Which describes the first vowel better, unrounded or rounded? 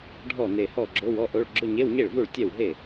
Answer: rounded